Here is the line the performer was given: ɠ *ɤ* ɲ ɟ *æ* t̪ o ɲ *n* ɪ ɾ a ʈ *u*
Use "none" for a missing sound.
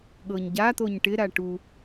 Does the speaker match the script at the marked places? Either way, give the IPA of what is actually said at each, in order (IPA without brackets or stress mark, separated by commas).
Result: ɤ, a, ʈ, u